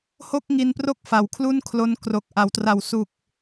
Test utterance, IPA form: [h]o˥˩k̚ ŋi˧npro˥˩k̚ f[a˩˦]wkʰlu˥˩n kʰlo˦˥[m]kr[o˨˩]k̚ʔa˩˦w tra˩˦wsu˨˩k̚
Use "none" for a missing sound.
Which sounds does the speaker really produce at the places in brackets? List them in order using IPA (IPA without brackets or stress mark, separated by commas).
h, a˩˦, n, o˨˩